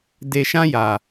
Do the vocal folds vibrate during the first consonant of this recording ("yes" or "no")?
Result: yes